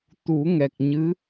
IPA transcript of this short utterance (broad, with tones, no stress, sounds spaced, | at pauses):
t̪ u˨˩˦ ŋ ɛ˨˩ k̚ ɲ ɨ˧˥